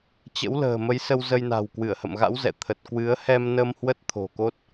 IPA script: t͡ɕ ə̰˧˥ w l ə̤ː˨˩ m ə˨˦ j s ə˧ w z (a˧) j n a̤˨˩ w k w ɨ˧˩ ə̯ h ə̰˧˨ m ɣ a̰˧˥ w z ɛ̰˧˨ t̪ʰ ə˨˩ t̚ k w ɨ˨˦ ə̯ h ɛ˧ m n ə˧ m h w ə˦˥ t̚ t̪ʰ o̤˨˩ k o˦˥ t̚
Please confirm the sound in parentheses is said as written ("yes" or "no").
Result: no